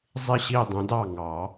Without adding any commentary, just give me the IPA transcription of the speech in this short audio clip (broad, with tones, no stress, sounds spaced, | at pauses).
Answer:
zˤ ɪ˥˩ ɕ i˥˩ dˤ ə̃˨˥ d ɑ˥˩ ŋ ɑ˨˩˦